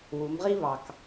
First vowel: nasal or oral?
oral